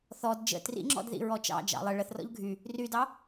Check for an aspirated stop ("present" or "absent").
absent